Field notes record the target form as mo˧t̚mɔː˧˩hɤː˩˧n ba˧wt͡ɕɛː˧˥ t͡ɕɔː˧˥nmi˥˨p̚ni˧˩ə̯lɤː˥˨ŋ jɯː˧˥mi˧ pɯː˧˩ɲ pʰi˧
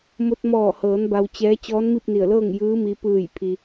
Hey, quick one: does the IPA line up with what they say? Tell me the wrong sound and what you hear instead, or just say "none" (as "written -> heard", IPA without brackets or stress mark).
ɲ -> j